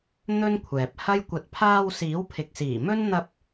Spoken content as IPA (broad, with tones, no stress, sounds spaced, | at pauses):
n̪ ɵ˥ n kʷʰ ɛː˨ p̚ h ɐ˥ j kʷ ɐ˨ t̚ pʰ aː˧ w s iː˨˥ w pʰ ɪ˨ k̚ s iː˨˩ m ɵ˥ n n̪ ɐ˧ p̚